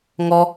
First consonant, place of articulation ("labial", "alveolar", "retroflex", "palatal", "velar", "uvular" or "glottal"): velar